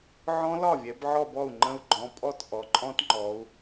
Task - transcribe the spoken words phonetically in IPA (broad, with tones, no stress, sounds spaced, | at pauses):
ʕ ɔ̃˦˥ l ɒ˥˩ vʲ ɛ˩˧ b ʕ ɔ˥˧ b ɔ˥˩ u̯ ŋ͡ǃ ə̃˦˥ u̯ ɡ͡ǃ ɔ̃˩˧˩ pʼ ɔ˥˧ t ʔ ɔ˩˧ ǃʼ ɔ̃˦˥ t ŋ͡ǃ ɔ˩˧ u̯